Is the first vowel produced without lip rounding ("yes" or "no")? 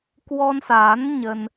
no